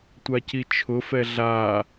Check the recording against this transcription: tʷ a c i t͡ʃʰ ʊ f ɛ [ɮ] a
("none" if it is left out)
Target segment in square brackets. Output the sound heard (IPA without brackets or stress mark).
ɮ